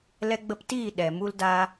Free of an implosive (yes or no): no